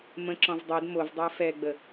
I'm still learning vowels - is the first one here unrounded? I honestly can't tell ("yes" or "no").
yes